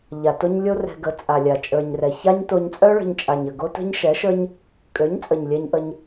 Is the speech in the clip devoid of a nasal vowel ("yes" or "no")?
yes